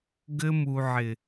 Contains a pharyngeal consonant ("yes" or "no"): yes